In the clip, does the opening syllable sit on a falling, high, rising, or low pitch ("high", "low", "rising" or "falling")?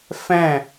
falling